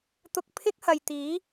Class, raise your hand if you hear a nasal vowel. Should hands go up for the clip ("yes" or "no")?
no